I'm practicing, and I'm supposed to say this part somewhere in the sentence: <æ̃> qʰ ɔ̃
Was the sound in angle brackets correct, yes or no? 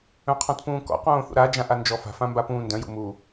no